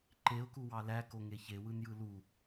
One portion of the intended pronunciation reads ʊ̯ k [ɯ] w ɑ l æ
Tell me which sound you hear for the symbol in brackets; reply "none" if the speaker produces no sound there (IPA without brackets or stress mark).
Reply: u